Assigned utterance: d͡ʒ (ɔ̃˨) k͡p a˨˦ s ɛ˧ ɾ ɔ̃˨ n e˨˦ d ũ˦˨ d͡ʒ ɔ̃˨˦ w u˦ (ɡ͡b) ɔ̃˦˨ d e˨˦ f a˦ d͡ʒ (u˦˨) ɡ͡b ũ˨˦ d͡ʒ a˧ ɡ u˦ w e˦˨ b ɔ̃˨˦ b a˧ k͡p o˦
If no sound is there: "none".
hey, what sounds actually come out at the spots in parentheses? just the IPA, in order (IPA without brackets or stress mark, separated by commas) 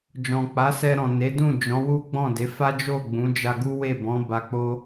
ɔ̃˨, ɡ͡b, o˦˨